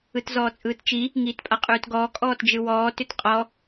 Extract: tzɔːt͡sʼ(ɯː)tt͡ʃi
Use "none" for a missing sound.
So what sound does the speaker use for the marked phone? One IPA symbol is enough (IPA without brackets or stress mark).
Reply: ɯː